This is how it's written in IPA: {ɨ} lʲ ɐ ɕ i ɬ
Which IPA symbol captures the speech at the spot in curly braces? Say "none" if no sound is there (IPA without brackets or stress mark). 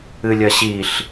ɨ